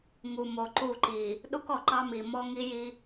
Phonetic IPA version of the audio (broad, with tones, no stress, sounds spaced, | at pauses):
ŋ u˨ m o˨ ǃ u˦˨ ǃ i˨ | ɗ u˦ k ɔ˨ ǃ ɑ˦ m i˨ m ɔ˦ ŋ i˦ j i˦